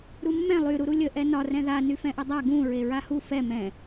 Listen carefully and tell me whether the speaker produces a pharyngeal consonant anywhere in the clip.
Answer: no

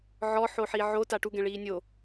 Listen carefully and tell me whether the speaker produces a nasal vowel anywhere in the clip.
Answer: yes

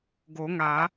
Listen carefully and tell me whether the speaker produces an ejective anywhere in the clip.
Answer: no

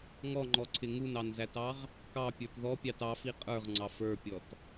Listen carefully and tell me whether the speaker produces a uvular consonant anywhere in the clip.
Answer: yes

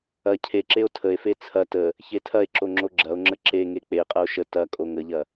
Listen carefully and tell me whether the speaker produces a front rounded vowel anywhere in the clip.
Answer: no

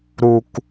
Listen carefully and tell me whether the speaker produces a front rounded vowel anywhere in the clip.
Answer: no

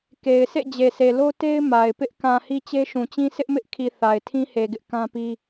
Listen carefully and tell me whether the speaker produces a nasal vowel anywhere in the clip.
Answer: yes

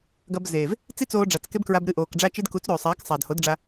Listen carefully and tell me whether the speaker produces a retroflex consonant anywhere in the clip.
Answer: yes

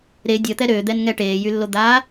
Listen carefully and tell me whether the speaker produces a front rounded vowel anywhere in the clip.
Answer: yes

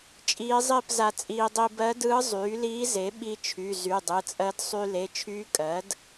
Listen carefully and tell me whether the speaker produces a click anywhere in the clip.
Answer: no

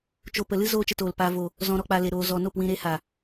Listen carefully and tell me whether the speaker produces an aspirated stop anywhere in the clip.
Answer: no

